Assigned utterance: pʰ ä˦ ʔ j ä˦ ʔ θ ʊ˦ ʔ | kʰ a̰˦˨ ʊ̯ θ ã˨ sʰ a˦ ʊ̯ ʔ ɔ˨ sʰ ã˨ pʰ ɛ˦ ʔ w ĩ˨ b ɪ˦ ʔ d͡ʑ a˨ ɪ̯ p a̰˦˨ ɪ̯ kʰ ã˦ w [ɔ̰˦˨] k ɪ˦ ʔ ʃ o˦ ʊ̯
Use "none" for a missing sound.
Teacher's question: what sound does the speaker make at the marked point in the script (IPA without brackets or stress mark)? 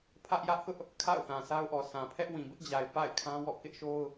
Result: ɔ̰˦˨